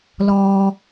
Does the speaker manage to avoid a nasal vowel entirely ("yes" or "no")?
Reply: yes